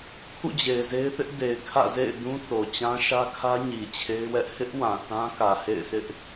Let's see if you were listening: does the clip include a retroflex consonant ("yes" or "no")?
no